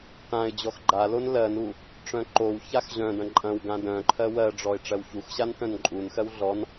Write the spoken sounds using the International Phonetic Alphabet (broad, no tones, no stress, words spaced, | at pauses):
tãɪ̯ d͡ʑɔxɡ͡ǃalon lɜnu | ʈ͡ʂœ̃ǃowçax ʑœ̃dɐ̃ ǃʼɐ̃wɡã dœ̃ǃʰɜ wɜɖ͡ʐɔɪ̯ ʈ͡ʂɜwçuxɕan tœ̃nǃʼunxɜw ɮɔn